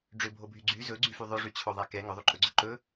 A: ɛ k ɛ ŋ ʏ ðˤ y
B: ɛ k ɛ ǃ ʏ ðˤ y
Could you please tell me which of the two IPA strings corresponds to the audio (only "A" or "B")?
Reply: A